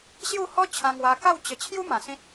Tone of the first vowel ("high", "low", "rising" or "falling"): falling